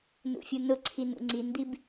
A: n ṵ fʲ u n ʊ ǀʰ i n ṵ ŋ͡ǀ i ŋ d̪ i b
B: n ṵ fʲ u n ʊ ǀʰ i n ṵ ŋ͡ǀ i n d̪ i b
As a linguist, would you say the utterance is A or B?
B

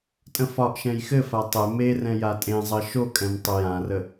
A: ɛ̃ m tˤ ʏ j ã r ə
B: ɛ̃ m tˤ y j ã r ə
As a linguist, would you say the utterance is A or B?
A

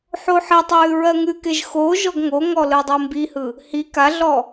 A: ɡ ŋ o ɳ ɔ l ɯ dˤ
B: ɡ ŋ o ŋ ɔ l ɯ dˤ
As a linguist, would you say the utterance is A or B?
B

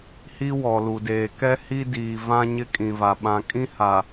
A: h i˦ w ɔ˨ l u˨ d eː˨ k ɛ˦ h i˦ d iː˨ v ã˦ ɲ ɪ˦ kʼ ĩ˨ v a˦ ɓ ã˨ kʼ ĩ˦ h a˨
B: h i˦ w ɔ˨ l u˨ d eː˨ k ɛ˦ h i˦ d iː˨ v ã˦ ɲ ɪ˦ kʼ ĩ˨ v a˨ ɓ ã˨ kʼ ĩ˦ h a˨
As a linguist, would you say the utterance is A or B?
B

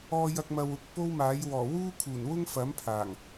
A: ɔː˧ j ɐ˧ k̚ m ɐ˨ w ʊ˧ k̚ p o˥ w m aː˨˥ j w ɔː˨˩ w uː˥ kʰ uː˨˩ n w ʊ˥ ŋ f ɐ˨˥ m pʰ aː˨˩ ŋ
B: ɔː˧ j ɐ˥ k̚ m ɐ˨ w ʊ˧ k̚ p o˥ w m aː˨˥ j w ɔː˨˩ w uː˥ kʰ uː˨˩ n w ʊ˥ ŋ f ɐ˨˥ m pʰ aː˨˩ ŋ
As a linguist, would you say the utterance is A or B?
A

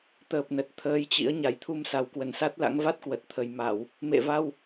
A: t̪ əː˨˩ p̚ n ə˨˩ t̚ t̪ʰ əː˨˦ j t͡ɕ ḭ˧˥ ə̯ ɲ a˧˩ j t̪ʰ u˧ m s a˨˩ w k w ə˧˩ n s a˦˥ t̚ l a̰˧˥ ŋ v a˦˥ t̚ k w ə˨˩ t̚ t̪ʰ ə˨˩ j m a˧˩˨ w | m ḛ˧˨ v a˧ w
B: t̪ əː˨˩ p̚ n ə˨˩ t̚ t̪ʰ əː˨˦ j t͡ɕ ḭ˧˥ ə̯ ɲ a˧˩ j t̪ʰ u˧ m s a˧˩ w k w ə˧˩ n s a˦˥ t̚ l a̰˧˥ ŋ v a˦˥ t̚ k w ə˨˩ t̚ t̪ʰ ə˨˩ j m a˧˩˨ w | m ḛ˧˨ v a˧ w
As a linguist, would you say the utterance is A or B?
A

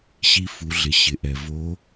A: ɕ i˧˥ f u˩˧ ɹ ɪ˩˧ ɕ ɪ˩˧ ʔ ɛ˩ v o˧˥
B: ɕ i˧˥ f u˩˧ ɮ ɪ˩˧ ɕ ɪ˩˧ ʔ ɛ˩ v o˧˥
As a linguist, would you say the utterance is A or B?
B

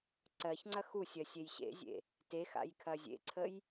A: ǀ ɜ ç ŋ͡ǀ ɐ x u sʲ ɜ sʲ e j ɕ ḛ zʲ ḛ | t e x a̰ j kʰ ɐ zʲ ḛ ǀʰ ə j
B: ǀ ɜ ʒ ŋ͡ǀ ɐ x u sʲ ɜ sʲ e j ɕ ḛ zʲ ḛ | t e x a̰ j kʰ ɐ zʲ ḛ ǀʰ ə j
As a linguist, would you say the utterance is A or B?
A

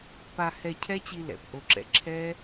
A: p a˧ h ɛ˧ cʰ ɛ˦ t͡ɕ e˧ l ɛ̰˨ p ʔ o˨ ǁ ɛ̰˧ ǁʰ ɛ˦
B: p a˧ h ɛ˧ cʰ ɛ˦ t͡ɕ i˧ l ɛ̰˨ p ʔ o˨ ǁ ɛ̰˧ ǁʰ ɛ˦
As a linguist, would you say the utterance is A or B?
B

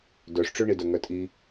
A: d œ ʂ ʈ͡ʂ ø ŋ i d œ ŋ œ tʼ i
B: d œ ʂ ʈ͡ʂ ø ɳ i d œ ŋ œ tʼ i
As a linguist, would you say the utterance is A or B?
B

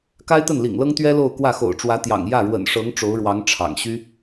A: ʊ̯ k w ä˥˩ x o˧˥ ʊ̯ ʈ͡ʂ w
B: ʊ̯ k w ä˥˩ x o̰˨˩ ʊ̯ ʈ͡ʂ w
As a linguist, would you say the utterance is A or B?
B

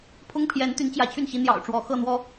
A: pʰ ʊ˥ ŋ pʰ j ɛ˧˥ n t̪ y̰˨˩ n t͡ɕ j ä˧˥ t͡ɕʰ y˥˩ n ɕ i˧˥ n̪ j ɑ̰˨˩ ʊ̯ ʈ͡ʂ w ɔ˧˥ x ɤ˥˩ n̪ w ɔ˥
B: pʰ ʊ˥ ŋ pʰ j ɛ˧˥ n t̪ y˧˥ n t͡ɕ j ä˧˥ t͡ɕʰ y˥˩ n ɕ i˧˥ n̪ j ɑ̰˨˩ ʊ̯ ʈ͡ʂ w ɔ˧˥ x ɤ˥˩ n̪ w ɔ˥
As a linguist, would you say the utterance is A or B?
B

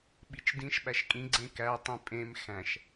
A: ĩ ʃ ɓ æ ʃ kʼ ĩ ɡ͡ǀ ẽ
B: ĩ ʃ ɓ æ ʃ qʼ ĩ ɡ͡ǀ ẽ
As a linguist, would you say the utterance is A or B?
A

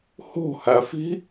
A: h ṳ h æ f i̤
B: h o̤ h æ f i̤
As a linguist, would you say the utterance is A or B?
B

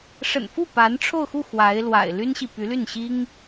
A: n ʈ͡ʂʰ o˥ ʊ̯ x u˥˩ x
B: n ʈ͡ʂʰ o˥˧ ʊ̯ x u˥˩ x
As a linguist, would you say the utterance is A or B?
B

